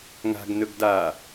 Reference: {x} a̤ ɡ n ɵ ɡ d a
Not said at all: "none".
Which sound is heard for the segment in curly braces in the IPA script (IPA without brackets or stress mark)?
ŋ